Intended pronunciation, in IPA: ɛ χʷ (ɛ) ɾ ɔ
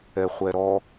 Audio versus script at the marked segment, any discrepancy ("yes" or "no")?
no